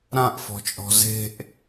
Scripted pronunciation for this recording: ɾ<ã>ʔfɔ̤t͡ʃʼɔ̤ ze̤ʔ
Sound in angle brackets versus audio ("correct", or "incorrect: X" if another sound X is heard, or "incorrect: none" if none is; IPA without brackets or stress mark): correct